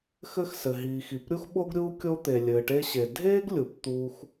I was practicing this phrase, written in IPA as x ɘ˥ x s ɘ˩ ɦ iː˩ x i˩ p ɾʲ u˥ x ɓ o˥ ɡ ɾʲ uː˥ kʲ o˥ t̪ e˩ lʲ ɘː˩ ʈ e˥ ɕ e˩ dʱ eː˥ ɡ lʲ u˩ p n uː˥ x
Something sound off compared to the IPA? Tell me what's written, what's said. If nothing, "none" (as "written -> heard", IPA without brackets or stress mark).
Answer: n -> t̪